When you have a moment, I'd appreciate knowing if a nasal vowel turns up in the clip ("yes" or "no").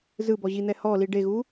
no